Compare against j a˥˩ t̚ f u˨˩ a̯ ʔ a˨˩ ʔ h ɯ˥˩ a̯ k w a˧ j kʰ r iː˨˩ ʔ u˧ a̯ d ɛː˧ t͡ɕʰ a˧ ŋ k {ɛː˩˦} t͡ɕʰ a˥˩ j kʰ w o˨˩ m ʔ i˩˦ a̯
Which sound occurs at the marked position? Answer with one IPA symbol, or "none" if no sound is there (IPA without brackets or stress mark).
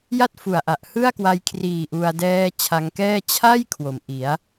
ɛː˥˩